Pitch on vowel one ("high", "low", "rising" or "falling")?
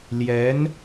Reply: rising